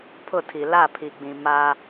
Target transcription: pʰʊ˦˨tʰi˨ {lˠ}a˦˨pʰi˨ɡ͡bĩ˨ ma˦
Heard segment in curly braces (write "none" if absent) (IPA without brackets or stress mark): l